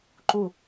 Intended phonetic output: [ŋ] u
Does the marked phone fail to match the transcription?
yes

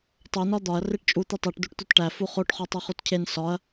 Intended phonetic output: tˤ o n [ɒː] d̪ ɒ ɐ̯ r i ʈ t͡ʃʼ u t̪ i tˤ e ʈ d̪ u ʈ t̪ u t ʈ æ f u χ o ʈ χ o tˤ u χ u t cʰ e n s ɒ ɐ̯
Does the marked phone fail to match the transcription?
yes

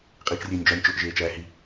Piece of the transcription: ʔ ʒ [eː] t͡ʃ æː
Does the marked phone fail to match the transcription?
no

